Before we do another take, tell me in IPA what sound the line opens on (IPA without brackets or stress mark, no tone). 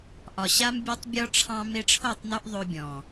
ʔ